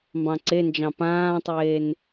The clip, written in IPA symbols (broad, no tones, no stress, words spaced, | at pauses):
mbɑ̃ǀend͡ʒɑ̃ pãːtˤeːn